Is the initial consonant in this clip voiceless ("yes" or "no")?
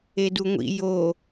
no